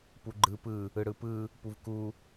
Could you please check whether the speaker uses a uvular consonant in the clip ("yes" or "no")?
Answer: no